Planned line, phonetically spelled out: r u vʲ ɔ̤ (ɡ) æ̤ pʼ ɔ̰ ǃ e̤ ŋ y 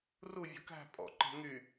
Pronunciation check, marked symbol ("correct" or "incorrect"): incorrect